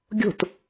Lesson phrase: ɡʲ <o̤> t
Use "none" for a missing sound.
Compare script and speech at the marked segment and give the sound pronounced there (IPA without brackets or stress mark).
o̤